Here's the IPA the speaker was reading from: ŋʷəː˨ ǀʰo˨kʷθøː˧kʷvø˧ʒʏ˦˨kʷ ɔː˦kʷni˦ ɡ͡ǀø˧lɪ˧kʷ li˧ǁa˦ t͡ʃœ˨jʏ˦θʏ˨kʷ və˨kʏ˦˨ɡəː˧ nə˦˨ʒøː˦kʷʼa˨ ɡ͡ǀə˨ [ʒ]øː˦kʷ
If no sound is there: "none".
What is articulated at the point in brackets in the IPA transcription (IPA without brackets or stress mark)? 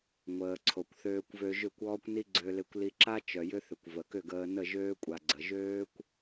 ʒ